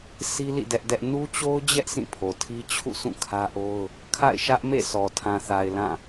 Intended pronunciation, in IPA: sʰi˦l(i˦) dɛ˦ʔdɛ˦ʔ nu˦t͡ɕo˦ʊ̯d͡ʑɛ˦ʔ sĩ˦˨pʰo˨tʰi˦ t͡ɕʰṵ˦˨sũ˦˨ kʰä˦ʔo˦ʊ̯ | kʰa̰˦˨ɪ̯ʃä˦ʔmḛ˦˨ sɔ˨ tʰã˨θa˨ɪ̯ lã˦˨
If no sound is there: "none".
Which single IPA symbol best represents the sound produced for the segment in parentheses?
ḭ˦˨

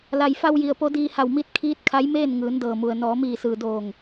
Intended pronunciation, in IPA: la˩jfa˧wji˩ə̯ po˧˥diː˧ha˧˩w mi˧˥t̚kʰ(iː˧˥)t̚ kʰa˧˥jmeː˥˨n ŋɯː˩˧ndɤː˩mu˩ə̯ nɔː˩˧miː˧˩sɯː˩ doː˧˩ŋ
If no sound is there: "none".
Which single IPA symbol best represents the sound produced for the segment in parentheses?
iː˧˥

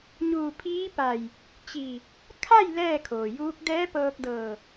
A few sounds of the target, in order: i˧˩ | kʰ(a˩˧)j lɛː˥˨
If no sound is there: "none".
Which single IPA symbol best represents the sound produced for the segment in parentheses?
a˥˨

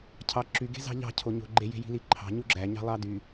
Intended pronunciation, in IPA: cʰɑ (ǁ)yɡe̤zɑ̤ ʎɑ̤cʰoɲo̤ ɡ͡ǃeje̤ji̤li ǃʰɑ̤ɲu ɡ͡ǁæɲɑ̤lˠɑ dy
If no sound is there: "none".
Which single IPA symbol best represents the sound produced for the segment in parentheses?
ǁ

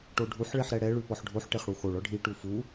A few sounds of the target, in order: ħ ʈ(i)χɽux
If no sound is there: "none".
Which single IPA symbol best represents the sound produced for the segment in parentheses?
e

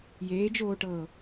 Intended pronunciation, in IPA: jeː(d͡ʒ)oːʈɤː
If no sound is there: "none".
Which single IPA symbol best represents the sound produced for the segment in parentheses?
d͡ʒ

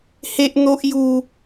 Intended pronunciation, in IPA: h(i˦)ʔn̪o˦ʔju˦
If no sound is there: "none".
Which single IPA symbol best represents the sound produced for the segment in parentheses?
e˦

